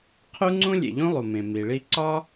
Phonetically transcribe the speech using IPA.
qʰ u˥ ŋ͡ǀ ũ˥ lʲ ḛ˩ ʎ ũ˥ lˠ u˩ m ẽ˩ m i˩ ɭ i˥ ǀ ɒ˥

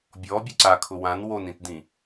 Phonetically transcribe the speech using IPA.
bʲ ɔː bʲ u ǀ a kʰ ʊ w ã n w o n ĩ t d ĩ

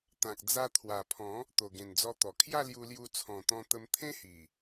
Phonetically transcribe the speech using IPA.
t̪ ã˨ k̚ d͡z a˧ t̪ʰ w a˨˩ pʰ ɔ̃˨˦ | t̪ o˨˩ ɡ ẽ˨˩ n d͡z ɔ˧ t̪ ɔ˨˩ kʰ j a˥˧ l j u˧ l j u˧ t͡sʰ ɔ̃˨˩ t̪ ɔ̃˧ t̪ ə˧ m t̪ʰ ẽ˦ h i˨˩

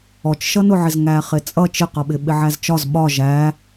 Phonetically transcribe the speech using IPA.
ɔ t͡ʃ ʃ ʌ n ʊ ʕ ɪ z ŋ æ χ ɪ t͡sʼ ʌ t͡ʃ ɪ q ʌ ɓ ɪ ɓ ɪ ʕ æ z t͡ʃ ɒ z ɓ ɒ ʒ æ

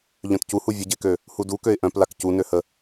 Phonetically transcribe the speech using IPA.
ʎ œ̃ t c u h u vʲ ə ɟ e k ø | h u d u k ø ɪ̯ ʔ œ̃ p l a k c u n ø h ə

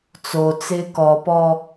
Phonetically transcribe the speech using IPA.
t͡s o t͡s ɪː k ɔ p ɔ

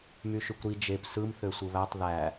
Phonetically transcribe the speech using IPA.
m y ʃ y kʷ ɾ i d͡ʒ e p s ɯ m θ ø sʷ ɯ β æ tˤ ð æ

